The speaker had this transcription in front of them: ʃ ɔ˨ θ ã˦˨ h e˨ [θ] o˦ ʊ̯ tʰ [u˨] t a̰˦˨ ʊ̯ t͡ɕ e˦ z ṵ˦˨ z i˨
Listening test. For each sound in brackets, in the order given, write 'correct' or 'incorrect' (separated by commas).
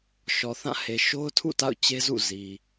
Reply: incorrect, incorrect